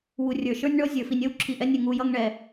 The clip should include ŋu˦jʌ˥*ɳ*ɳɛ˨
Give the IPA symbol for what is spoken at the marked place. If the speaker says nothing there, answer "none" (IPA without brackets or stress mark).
ŋ